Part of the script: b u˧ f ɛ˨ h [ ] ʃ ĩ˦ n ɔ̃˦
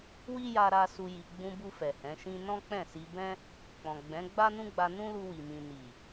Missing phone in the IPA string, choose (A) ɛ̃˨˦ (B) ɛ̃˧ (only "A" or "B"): A